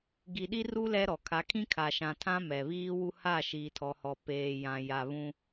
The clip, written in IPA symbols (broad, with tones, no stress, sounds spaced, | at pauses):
ɡ i˨ ɗ i˦ r u˦ l ɛ˦ ɾ ɔ˨ kʰ a˨˦ kʰ ĩ˦ kʰ a˨ ʃ ã˨ tʰ ã˦ m ɛ˨ β iː˦ w u˦ h a˦˨ ʃ iː˨ tʰ ɔ˨ h ɔ˨ p eː˨ j ã˨ j a˨ β ũ˦